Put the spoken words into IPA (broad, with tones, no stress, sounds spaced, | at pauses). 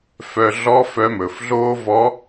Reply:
f œ˧ ɮ ɔ˧˥ f œ˧˥ m ɵ˩˧ f ɮ oː˥ v ɔ˧˥